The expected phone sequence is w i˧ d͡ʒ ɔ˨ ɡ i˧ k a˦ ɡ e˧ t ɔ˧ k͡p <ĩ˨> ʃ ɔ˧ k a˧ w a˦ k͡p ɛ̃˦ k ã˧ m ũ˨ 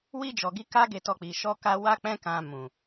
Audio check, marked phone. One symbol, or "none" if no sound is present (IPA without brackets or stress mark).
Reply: i˨